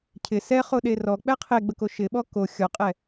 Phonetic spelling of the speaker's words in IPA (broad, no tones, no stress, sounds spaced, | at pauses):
cʰ ɪ s ɛ χ o ɗ e r ɔ k͡p ɛ qʰ e ɡ͡b ə k o ʃ ɪ ɓ ɔ k o xʲ ɔ qʼ ɛ